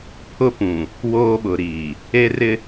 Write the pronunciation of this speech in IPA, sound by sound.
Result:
pʰʊ˦pũ˨ | woː˦ɓʊ˨ɾiː˨ | e˦rɪ˦

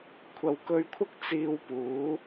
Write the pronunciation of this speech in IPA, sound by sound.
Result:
kʷʰɐ˨wkɵ˧ɥkʷʰɐ˥k̚ t͡siː˧wpuː˨˥

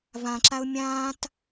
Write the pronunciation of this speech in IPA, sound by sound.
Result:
vãǁaʊ̯ mʲãːt

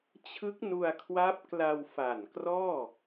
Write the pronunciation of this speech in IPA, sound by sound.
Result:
t͡ɕʰɯ˦˥k̚nu˧a̯kʰwa˦˥p̚ kla˧wfa˨˩nkrɔː˥˩

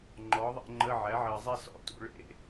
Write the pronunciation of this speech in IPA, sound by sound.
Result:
ŋ͡ǃɔ˩˥ðˤḛ˥˧ŋ͡ǃə˧˥˧ ʕæ˩˥ʕɜ˨zˤe˥˧ sɔ̰˩˥tṵ˧˥˧ ɭḛ˥˧

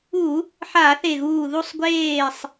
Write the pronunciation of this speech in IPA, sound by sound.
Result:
u˧˩˧ | ħa˧˩˧θe˧˩ɣuː˧˩ ðu˧˩sˤɡʷeː˧˩sˤ

